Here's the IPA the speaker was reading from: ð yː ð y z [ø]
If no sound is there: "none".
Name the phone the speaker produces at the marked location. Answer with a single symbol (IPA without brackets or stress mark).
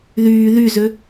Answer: ø